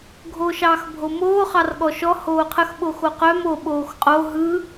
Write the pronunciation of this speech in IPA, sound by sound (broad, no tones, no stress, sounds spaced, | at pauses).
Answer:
ɡʱ oː ʃ ɑː x bʱ o m oː χ ɑ r ɠ ɔ ʃ ɔ h oː qʰ ə x ɓ o x o q œ m o ɓ oː x qʼ o ɦ ɯ